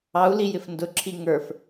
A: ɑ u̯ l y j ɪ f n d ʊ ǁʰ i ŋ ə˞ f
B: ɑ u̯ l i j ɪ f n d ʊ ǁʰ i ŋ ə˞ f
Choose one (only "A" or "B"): B